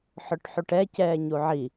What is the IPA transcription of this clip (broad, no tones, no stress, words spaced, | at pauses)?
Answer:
ħʊʈħuʈɛ cɛːɲuʕi